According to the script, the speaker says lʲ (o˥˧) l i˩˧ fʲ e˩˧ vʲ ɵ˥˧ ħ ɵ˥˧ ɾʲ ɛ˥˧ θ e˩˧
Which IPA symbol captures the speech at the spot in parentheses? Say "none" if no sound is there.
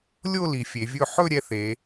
o˥˧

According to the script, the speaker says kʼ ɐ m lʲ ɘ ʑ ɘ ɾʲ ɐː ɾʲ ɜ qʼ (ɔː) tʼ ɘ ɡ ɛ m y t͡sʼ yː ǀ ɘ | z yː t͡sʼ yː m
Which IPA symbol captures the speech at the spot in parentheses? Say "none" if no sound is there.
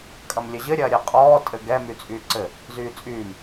ɔː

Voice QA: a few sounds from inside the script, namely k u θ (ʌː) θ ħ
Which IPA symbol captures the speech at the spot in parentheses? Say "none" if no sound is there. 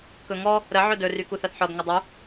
ʌ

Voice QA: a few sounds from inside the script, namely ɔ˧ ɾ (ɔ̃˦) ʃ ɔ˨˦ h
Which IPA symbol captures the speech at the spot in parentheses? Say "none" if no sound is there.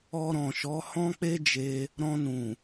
ɔ̃˨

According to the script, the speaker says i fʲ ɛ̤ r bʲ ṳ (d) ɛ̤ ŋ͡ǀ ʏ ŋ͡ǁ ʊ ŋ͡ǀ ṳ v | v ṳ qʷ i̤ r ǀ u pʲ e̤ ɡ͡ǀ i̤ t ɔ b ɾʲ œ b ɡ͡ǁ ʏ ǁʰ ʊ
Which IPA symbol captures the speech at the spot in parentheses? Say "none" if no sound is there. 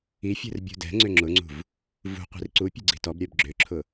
d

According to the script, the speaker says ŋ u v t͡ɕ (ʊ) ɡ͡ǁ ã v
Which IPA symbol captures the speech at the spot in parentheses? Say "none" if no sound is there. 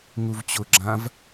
ʊ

